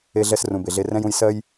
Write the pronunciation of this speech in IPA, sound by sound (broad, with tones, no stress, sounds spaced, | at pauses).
e˦ ɮ ɛ˦ s r ũ˨ b e˨ ɮ e˦ r ɛ̃˥ j ũ˦ j s ɜ˥ j